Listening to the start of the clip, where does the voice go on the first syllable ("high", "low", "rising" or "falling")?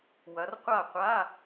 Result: rising